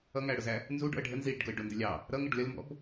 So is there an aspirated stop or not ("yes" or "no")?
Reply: no